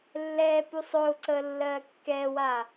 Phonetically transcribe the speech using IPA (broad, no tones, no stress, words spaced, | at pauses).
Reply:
lːɛː pusˤʊːǀəː lːɜːkːɛːwaː